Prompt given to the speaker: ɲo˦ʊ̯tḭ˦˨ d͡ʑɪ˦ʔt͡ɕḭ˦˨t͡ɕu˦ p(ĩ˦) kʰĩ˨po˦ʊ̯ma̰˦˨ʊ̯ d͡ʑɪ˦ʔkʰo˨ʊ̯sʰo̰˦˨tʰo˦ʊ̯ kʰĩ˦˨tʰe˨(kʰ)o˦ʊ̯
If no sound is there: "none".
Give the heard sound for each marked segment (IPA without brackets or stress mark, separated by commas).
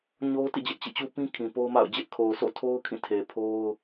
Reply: ĩ˦, pʰ